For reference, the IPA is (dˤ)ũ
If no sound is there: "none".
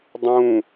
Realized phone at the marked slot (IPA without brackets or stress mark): dˤ